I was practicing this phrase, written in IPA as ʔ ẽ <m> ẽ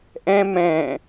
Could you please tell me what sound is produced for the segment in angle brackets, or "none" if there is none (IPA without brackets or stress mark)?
m